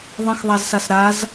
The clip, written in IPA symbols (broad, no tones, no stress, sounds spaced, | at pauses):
ðˤ ə̃ x ðˤ a z s a s ɾ a z